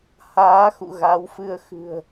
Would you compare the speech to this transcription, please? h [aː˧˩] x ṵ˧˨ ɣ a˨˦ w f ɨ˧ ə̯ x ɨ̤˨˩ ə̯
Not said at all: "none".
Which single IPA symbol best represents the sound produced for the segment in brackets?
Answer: aː˨˦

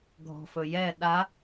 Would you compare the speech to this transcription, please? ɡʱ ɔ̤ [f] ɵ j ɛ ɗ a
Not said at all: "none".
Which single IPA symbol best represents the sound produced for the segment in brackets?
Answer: f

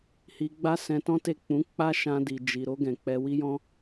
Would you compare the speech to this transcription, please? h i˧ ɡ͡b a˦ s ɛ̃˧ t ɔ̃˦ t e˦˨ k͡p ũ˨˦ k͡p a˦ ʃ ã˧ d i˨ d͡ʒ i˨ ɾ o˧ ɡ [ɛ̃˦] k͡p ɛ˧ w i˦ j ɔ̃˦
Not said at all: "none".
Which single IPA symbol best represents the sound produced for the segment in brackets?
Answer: ɛ̃˨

